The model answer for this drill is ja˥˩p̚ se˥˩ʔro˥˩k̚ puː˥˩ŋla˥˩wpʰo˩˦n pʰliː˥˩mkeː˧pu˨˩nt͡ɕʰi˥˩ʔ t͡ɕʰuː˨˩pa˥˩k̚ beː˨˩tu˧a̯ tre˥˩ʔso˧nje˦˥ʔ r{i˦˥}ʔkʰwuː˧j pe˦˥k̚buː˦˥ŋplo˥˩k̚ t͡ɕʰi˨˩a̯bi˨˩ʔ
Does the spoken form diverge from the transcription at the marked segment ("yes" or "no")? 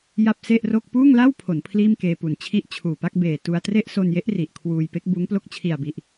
yes